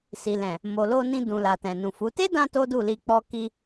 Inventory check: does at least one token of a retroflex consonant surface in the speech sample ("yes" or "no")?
no